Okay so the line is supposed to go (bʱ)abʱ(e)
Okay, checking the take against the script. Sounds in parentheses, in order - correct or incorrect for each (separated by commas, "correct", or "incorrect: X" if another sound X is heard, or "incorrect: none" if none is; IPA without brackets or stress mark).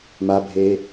incorrect: m, incorrect: eː